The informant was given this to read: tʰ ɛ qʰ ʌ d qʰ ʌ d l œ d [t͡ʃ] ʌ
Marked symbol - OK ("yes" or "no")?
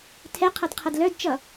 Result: yes